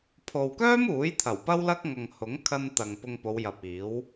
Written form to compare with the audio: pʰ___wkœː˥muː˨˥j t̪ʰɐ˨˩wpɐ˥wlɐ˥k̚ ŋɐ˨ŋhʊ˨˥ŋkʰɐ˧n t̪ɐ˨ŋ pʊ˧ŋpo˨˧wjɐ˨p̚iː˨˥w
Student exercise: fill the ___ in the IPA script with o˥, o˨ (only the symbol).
o˨